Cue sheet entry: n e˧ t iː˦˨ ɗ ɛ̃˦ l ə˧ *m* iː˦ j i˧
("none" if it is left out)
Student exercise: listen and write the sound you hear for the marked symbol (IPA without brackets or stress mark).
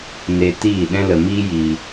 m